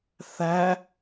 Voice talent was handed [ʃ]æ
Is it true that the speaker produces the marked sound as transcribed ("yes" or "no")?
no